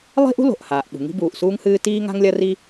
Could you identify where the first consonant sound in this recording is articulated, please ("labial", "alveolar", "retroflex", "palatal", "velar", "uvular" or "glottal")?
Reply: alveolar